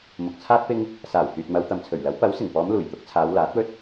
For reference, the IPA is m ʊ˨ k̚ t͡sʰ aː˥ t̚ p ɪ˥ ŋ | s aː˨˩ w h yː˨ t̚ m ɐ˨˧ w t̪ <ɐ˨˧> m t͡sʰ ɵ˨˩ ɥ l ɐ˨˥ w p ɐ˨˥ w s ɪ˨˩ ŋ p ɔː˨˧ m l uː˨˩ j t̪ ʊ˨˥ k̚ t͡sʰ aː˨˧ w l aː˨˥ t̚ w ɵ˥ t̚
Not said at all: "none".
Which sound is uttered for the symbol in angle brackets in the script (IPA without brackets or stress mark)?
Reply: ɐ˨